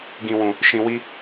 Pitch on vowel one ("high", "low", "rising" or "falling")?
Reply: high